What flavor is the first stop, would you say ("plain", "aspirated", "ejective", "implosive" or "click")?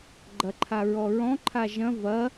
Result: click